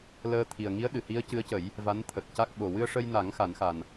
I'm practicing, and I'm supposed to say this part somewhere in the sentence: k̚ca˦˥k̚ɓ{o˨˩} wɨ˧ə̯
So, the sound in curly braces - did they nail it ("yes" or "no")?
yes